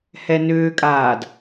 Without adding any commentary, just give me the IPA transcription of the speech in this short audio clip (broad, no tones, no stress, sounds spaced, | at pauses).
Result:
h ɛ n ʏː kʼ aː d